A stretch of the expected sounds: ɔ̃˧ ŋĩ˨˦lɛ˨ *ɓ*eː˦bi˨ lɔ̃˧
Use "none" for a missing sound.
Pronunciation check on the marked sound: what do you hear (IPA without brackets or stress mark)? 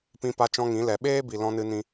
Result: ɓ